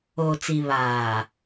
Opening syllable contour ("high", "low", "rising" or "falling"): low